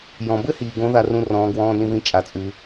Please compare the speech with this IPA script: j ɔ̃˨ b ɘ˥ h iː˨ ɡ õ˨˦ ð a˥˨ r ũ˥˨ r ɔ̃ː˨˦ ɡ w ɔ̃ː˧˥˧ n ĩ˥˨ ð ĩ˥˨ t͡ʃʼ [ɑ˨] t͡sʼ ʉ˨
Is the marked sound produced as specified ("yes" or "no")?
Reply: no